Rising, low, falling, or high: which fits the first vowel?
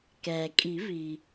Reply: low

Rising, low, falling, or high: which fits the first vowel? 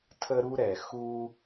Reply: high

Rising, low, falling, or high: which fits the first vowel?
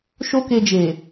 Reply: high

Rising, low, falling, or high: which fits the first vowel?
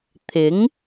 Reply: rising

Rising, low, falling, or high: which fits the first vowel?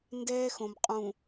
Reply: high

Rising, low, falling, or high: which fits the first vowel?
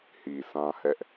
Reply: low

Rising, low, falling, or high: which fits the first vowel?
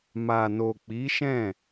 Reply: low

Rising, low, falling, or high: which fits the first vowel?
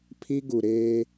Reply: high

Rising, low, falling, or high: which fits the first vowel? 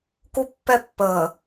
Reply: high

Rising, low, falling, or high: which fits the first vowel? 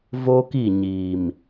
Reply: high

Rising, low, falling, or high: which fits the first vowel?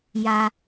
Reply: high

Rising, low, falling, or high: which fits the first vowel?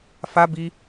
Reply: high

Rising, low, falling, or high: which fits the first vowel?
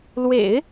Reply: low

